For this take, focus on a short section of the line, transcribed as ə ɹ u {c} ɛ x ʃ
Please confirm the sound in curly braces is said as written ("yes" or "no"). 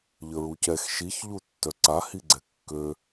yes